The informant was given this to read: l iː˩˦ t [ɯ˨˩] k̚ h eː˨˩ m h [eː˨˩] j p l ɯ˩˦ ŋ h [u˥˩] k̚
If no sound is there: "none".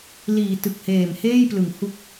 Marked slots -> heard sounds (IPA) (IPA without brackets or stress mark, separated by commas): ɯ˨˩, eː˥˩, u˦˥